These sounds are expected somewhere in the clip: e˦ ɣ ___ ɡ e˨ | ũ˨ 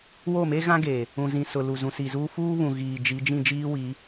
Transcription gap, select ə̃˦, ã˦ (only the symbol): ã˦